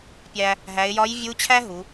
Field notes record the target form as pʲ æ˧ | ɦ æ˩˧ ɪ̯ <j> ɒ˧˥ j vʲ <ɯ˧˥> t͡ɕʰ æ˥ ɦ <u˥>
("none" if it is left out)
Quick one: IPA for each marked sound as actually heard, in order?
j, u˧˥, u˩˧

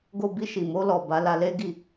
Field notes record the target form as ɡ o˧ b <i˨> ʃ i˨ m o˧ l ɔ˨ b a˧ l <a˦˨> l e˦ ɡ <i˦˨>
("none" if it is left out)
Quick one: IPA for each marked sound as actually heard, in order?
i˧, a˧, i˦˨

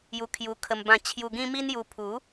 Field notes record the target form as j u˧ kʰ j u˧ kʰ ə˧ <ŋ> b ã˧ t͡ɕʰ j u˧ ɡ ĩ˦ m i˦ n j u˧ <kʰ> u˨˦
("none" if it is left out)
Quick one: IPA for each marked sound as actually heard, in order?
m, pʰ

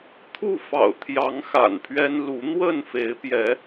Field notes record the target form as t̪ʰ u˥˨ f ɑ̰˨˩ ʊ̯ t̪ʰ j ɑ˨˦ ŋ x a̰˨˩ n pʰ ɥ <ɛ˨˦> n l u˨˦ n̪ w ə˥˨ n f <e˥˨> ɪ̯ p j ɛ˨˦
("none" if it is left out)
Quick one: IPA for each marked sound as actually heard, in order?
ɛ˦, e˨˦

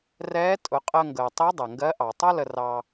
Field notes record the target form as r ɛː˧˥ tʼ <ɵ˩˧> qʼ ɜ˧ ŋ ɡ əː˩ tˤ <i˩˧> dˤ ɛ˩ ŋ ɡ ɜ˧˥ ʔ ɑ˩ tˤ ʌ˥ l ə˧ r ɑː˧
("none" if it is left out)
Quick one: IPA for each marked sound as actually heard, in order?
ʊ˩˧, i˧˥

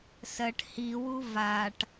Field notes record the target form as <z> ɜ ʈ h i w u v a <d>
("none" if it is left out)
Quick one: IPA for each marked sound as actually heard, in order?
s, ʈ

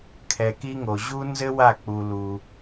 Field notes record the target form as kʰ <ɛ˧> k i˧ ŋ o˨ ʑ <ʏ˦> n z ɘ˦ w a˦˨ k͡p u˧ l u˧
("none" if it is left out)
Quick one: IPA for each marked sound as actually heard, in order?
ɛ˧, u˦

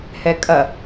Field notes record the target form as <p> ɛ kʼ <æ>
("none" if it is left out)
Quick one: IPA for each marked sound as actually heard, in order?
h, ɐ

